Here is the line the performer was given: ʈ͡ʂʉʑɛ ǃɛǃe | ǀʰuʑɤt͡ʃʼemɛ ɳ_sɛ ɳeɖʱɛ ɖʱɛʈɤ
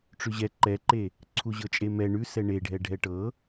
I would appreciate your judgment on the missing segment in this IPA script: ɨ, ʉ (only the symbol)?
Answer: ʉ